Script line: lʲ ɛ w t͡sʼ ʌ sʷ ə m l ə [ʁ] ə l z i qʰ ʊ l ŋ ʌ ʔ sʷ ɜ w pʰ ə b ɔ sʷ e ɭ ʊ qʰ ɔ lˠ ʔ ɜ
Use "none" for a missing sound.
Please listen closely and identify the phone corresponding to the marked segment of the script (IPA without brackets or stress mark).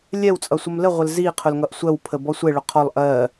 ʁʷ